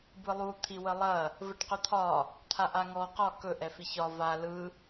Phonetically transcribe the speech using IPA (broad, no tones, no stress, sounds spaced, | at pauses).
b ɯ lˠ u t̪ʰ i w ə lˠ ɐ | v ə ʈ q ɵ t̪ʰ ɒ | t̪ʰ a ʔ a ŋ ɔ q ɒ k ɵ ʔ ɛ f i ç ɒ v a l ɯ